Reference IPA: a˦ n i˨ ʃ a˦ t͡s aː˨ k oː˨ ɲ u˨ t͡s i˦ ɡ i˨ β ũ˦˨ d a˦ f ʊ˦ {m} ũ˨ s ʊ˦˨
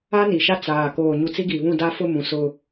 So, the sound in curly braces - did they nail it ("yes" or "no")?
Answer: yes